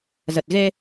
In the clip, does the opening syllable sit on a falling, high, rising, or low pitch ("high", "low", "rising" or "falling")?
low